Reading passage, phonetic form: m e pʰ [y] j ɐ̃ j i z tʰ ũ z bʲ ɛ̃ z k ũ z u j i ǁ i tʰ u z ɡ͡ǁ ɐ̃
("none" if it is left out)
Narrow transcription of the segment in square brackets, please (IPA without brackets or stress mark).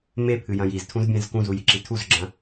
ɨ